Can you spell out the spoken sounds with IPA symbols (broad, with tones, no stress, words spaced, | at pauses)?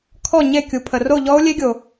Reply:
kʰɔ˥˨ɲe˥˨kʲu˨ pʰə˨ro˥˨ʎɔ˦˥o̯ lʲe˦˥ɡʲo˨